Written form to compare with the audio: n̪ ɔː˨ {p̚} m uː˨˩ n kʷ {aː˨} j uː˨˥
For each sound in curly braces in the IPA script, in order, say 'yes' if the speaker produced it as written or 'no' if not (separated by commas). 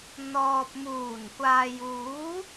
yes, yes